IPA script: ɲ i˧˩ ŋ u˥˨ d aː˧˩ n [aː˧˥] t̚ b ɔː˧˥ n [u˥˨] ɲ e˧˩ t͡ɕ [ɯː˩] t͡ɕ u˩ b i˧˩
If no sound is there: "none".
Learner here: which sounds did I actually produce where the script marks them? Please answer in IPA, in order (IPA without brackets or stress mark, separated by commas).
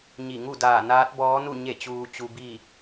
aː˧˥, u˥˨, uː˩